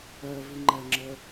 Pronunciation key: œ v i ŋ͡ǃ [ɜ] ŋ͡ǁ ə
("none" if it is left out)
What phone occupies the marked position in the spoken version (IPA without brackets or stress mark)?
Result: ɜ